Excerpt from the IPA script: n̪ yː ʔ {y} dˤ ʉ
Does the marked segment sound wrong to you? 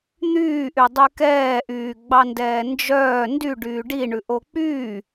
no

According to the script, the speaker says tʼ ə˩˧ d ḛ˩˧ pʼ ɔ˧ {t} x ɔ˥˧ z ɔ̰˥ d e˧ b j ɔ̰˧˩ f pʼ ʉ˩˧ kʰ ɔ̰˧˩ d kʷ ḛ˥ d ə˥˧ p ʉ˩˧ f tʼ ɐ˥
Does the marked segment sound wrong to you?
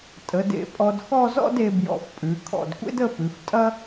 yes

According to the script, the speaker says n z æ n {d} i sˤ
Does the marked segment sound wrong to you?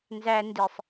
no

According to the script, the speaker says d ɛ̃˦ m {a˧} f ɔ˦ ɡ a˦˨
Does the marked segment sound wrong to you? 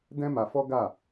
no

